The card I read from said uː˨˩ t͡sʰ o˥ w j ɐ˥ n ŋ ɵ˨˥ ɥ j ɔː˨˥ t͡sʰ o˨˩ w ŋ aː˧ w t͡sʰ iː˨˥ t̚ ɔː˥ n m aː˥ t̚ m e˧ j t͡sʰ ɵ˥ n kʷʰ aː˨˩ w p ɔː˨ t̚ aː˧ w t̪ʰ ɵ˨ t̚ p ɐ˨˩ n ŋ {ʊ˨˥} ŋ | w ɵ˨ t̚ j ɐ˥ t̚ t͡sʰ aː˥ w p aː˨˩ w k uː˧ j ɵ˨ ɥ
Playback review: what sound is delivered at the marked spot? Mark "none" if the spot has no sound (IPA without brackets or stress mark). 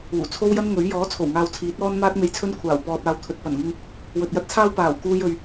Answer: ʊ˧